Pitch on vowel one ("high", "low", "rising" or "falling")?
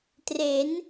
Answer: rising